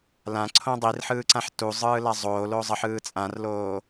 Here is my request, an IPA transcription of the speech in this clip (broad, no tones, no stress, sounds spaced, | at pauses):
l ã ǀʰ õ dˤ i r ħ ɯː ǀ ã ħ t u zˤ ɯː l a zˤ oː l o zˤ ʌ ħ ɯː t͡sʼ ã r l oː